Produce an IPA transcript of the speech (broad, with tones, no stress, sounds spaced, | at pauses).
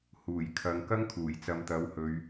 h uː˨˩ j kʰ ɐ˨˧ ŋ k ɐ˥ ŋ kʰ uː˨˩ j t͡s ɐ˨˧ m t̪ ɐ˨˥ w h ɵ˨˧ ɥ